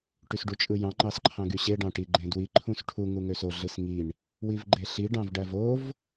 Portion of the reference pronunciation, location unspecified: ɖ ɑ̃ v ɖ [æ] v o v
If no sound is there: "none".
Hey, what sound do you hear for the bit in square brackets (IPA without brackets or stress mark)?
æ